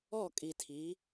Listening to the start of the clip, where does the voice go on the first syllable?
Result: falling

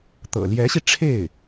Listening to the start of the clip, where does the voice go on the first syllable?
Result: low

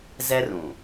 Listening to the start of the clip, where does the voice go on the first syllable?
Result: high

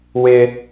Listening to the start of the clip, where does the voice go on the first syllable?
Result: high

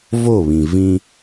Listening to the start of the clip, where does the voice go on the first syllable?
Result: falling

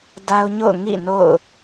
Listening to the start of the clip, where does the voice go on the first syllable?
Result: high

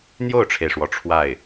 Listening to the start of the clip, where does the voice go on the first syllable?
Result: falling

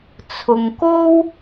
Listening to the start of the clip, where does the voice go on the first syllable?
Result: low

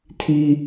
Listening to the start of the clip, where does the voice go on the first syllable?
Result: high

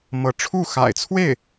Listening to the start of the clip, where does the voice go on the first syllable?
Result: rising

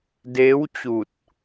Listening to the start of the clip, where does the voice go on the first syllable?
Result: rising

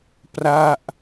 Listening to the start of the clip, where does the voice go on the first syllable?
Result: falling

